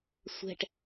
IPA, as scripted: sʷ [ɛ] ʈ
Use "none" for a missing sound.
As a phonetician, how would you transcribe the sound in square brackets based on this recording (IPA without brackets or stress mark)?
ɛ̤